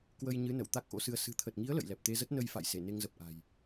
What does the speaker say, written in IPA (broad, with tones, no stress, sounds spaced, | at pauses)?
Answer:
k w ə˧ j ɲ ɨ˨˦ n ə̰˧˨ w t̪ a˦˥ k̚ ʔ o̰˧˥ s ɨ˧ ə̯ s ɨ̤˨˩ t̪ʰ ə˨˩ t̚ ŋ i˨˦ ə̯ l ə̰˧˨ j l ɛ˨˩ p̚ t̪ e˧ z ə˦˥ t̚ n ə˧ j f a̰˧˨ j s e˧˩ n e˧ ŋ z ə˨˩ p̚ ʔ a̤˨˩ j